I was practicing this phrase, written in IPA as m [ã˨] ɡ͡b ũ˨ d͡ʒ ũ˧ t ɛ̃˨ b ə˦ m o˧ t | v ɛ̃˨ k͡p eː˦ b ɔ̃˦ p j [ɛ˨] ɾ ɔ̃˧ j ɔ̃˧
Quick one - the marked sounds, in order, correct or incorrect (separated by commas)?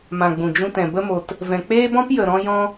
correct, incorrect